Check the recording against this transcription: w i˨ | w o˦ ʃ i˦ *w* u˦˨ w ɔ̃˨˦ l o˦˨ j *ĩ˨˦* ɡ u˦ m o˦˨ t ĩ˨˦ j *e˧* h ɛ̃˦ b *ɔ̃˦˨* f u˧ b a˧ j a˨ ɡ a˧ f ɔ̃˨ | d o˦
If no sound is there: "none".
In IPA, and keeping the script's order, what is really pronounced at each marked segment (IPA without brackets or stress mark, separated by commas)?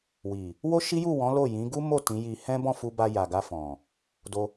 j, ĩ˨˦, i˧, ɔ̃˦˨